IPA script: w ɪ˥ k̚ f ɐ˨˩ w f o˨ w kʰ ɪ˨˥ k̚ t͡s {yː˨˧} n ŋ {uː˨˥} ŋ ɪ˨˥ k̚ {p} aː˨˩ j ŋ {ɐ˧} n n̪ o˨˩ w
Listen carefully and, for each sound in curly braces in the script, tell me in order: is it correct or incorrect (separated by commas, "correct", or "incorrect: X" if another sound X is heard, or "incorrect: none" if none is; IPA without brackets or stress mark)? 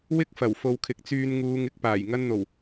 incorrect: yː˧, incorrect: uː˨˧, correct, correct